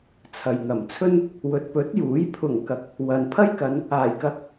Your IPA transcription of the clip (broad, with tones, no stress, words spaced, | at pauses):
t͡sʰɐ˨jŋɐ˨˩mt͡sʰɵ˥n | wɵ˨t̚pɵ˨˥t̚juː˨˥j pʰʊ˨˩ŋkɐ˨k̚ | wɐ˨npʰɐ˥jkɐ˨˧n | aː˨˩jkɐ˧k̚